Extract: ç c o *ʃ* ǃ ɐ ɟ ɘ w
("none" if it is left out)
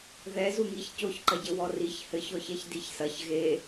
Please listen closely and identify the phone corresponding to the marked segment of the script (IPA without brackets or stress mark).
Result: ç